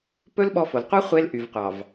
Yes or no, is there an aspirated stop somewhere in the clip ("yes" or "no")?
no